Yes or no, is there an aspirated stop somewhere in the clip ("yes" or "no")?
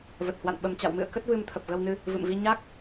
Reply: yes